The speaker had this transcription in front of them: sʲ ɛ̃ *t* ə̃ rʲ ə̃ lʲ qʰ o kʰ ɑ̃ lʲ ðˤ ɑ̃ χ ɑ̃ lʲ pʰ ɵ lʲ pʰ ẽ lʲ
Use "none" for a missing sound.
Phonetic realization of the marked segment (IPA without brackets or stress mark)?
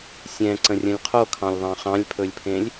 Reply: ǀ